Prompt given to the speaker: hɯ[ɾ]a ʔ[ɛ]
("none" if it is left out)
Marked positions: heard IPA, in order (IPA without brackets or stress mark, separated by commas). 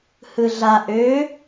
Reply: ɮ, ø